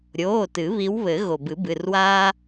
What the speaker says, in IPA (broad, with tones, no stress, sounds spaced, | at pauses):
ɾʲ oː˩˧˩ t ɨ˨˩˦ β i˨˦ w β ɘ˨˩˦ ɣ o˩ b ɨ˨˩˦ b ɨ˩˧˩ r w aː˥